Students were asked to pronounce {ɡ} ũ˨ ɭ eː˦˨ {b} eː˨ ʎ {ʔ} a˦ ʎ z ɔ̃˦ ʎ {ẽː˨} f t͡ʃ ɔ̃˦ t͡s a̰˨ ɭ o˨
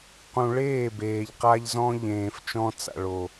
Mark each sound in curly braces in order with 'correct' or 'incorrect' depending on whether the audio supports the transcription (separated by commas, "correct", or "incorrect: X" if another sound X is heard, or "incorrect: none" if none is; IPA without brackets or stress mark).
incorrect: q, correct, incorrect: q, correct